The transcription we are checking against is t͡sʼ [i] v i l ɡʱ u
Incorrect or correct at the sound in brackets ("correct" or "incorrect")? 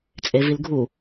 incorrect